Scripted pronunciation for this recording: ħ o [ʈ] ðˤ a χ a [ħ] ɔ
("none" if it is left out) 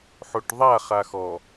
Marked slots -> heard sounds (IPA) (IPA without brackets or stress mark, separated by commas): ʈ, x